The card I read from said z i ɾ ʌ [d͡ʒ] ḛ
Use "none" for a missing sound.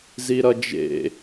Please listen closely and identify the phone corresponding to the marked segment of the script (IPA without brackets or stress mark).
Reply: d͡ʒ